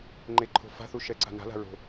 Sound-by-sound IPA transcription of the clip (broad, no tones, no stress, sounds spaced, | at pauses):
ŋ͡ǃ e ǃʰ o̤ f a̤ θ u ʃ ɛ ǀ a̤ n a̤ l a̤ ɹ o̤